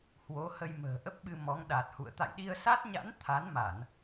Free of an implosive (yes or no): no